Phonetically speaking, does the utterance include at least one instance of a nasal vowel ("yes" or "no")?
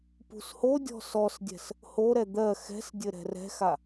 no